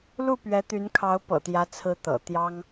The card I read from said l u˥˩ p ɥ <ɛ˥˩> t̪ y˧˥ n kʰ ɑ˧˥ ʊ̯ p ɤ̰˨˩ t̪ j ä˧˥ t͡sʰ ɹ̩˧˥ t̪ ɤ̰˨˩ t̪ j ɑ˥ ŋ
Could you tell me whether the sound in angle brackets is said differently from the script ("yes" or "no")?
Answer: yes